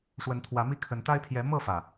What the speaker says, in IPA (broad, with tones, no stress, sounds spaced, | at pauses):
ʂ w ə˨˦ n t̪ʰ w ä˨˦ m i˥˨ kʰ ə˨˦ n t̪ a˦ ɪ̯ pʰ j ɛ˨˦ m ɤ˥˨ f ä˩